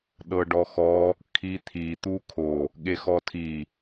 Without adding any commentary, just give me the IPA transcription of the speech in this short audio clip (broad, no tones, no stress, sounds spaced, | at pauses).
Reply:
ɗ ɤ ɖ ɔ x ɔ | kʰ i t̪ʰ i t̪ u kʰ o | ɠ e x ɔ tʰ i